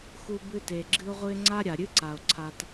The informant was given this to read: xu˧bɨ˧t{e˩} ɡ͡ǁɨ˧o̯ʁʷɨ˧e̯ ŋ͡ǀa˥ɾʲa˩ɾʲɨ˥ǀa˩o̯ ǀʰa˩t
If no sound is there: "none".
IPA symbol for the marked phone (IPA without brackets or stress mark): e˩